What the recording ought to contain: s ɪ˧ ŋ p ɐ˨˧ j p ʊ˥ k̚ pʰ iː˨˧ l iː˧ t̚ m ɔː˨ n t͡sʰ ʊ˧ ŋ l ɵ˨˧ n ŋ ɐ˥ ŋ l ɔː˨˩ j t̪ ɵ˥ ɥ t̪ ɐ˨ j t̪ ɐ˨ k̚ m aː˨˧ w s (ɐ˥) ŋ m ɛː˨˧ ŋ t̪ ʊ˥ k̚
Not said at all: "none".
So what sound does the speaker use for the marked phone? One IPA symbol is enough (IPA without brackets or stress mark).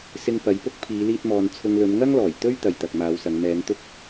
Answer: ɐ˨˧